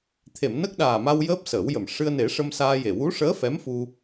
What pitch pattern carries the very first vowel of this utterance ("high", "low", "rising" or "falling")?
low